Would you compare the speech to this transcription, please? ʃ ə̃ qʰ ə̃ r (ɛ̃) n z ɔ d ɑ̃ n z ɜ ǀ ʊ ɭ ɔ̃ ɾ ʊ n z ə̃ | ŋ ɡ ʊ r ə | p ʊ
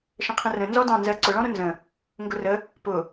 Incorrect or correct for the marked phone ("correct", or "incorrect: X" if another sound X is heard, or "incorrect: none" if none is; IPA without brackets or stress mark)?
incorrect: ə̃